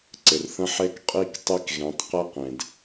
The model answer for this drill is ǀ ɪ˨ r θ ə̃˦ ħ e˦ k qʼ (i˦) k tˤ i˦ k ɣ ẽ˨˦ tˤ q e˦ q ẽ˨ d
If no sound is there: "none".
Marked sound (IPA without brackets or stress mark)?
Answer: i˦